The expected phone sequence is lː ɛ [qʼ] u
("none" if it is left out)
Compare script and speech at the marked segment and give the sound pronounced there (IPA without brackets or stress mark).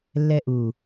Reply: ʔ